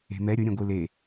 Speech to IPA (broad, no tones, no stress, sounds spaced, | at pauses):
e̤ m ɛ ɾʲ ʊ ɾʲ ẽ ɡʷ ɯ l e